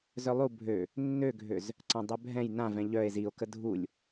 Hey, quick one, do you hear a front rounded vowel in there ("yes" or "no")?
yes